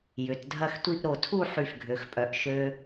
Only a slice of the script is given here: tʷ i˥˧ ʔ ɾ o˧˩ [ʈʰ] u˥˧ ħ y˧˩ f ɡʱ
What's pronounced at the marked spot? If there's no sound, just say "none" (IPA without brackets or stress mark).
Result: tʰ